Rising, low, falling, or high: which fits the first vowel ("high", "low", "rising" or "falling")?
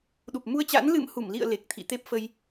low